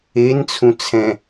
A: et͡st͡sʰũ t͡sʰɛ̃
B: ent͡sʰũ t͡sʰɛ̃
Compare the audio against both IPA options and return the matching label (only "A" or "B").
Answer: B